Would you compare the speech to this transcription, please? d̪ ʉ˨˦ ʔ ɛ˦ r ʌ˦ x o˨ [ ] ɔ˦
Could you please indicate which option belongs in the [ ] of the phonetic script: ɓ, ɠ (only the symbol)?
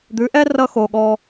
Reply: ɠ